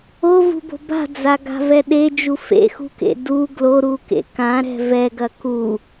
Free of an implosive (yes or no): no